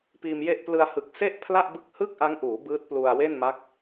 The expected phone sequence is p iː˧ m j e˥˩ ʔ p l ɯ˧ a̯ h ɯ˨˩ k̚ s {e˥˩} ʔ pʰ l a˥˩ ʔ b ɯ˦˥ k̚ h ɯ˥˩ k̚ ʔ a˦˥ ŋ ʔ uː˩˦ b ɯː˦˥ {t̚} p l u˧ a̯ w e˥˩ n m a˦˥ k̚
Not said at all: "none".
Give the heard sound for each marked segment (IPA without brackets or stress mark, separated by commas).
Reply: e˥˩, t̚